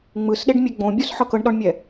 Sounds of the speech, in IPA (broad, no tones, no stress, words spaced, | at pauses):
ŋ͡mɯsɗeɖmʲe ɡ͡bõbʲos ħɤkɤɳɗɔɳmʲɛ